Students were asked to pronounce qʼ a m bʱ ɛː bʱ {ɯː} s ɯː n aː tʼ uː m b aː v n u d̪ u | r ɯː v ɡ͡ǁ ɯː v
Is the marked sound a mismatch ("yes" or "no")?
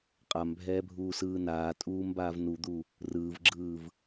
yes